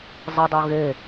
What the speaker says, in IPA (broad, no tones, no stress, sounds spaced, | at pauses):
zˤ ɪ dˤ o ɣ e